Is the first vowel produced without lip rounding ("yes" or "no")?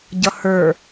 yes